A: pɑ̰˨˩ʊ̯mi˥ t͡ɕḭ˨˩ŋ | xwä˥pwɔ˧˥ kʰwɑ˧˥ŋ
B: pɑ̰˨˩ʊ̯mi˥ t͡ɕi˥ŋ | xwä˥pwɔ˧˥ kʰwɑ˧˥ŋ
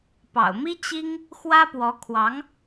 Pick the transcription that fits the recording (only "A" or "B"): B